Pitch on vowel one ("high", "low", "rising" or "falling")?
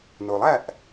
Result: low